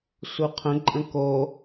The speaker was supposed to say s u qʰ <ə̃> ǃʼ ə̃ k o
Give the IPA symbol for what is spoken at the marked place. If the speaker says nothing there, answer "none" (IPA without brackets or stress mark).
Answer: ə̃